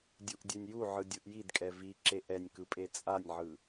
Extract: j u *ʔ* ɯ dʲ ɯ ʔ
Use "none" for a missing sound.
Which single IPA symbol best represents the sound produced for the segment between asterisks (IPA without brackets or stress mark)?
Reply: ʕ